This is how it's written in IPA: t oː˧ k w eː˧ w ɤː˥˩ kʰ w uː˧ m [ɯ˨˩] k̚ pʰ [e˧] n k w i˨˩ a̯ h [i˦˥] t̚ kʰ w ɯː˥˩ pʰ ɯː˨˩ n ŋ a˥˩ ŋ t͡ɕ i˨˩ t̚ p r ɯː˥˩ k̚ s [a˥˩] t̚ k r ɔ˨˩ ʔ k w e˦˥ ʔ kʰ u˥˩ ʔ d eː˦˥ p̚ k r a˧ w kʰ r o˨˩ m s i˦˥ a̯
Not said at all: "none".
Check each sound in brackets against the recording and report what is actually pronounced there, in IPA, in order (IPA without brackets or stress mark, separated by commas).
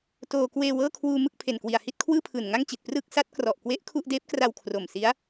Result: ɯ˥˩, e˨˩, i˥˩, a˦˥